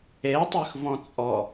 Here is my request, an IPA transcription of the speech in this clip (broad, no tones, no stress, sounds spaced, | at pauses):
e tˤ y x v ɔ̃ t͡sʼ ɔ